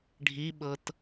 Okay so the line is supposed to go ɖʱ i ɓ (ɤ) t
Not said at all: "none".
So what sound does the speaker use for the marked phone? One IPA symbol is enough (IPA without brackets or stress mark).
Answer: ɤ